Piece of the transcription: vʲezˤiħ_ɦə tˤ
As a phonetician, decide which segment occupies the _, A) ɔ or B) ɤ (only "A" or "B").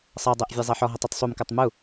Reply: A